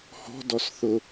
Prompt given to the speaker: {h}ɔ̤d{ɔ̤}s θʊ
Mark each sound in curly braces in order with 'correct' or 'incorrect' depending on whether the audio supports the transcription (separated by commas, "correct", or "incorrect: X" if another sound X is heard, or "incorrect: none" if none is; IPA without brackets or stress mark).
correct, incorrect: ɔ